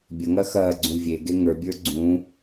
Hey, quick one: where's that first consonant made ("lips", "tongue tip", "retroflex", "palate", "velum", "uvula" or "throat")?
lips